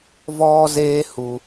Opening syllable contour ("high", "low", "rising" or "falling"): high